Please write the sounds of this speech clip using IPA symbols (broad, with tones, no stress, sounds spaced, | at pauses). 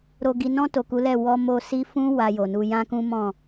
ɾ o˨ ɡ i˨ n ɔ̃˧ t o˨ k u˨˦ l ɛ˦˨ w ɔ˧ m o˧ s i˧ f ũ˦ w a˧ j o˨ n u˧ j ã˦ k ũ˦ m ɔ̃˦˨